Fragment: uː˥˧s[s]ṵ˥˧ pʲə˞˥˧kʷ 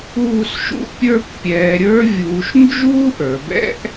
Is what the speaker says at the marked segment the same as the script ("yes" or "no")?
no